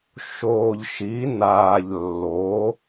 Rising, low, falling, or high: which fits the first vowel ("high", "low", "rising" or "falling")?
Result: low